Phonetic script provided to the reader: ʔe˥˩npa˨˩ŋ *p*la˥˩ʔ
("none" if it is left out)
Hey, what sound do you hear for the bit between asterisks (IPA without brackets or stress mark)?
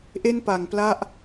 p